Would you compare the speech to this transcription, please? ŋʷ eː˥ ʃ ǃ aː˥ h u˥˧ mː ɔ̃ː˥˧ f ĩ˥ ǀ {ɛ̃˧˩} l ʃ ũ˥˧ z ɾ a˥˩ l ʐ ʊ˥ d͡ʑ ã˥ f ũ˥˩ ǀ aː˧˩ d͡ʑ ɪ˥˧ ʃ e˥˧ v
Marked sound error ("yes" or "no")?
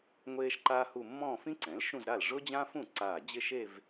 yes